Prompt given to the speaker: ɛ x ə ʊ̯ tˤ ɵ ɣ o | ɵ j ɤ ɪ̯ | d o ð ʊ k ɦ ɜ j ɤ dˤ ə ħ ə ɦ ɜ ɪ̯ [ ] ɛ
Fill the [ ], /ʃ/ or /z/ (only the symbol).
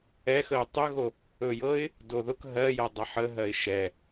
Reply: ʃ